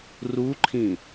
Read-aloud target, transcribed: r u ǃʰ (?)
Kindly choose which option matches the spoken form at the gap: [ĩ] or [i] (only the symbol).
ĩ